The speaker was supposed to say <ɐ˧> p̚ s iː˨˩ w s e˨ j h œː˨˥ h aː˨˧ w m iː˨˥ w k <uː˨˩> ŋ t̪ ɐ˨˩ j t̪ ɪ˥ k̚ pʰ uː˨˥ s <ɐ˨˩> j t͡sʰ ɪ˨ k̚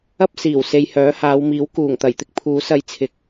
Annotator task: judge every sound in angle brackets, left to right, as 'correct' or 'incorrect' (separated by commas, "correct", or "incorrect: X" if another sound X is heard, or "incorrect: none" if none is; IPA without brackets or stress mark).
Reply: incorrect: ɐ˥, correct, incorrect: ɐ˧